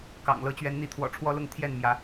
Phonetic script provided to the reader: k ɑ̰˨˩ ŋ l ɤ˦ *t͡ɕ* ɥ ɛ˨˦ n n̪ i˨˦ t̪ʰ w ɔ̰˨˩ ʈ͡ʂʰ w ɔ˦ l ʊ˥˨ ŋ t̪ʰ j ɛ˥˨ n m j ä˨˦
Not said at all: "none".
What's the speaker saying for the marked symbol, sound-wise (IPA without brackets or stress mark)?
t͡ɕ